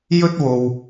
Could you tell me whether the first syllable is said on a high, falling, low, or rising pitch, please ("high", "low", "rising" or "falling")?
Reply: high